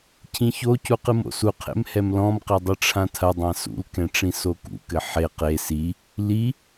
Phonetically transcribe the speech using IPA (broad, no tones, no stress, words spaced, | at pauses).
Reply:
cʰĩçocu qɨmo̰suqʰḛm hɛmlɔ̃mqe dˤɘʈ͡ʂʰãtʰɐdˤã sṵlkɛ̃ ʈ͡ʂĩsokṵkɘ ħe qe si | li